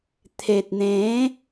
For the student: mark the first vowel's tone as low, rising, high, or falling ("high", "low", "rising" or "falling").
low